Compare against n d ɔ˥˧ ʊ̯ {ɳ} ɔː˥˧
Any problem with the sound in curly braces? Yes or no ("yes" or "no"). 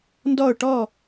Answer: yes